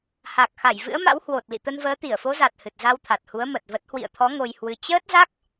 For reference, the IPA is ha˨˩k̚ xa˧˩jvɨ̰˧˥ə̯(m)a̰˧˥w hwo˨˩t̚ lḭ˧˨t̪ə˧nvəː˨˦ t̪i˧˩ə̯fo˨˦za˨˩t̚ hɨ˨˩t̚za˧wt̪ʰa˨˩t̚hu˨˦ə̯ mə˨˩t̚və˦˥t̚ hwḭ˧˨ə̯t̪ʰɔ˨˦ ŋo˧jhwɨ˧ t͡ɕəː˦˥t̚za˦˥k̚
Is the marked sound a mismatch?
no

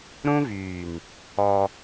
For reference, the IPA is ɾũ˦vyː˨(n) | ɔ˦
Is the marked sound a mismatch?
no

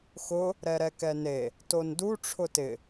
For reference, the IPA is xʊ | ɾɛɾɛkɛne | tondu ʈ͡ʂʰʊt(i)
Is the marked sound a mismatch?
yes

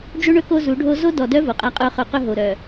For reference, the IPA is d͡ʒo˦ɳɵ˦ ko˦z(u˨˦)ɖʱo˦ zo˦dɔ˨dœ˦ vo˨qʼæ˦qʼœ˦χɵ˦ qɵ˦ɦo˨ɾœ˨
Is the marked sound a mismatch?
no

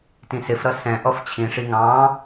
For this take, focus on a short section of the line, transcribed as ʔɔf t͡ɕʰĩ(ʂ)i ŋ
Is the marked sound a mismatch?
no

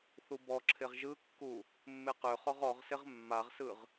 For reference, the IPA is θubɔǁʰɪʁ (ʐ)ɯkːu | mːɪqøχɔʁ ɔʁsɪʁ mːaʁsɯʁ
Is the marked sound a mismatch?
yes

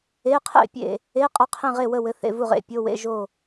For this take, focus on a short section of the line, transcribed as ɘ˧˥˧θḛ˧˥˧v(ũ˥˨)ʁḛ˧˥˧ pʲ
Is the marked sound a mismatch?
yes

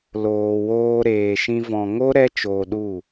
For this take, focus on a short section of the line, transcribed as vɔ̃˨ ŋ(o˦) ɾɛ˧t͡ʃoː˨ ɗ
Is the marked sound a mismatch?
no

